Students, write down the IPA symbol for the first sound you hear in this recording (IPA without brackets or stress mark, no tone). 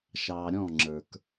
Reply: ʃ